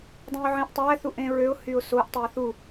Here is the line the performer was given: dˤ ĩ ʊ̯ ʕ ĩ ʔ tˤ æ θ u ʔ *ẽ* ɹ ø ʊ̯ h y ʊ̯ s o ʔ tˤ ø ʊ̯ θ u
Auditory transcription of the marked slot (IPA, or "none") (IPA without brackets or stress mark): ẽ